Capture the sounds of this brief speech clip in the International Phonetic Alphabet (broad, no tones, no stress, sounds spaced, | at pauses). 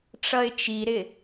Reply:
ʈ͡ʂ ʌ ɪ̯ t͡ʃ i ɾ ɪ